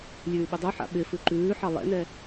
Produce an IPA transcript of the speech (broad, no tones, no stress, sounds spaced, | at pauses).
lʲ ʉː ɓ ɪ dˤ ʉ ħ a̰ ɓ ɪ f ʉ ǃ ʉː ħ ɑ lˠ ɛ̰ n ɛ